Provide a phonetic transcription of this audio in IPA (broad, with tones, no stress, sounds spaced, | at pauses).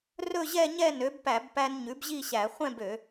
r ɵ˥˧ ʑ ɛ˥˧ ɲ ɛ˥˧ n ø˩˥ b p æ˧˩˧ b p æ˧ n ɲ ʉ˩˥ b ʑ i˥˧ ɕ æ˧˩˧ χʷ ɛ̃˥˧ b ø˧˩˧